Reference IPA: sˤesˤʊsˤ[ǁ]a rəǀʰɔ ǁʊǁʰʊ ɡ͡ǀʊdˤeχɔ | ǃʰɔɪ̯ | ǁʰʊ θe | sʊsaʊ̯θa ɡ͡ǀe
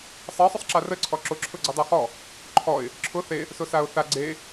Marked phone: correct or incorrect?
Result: correct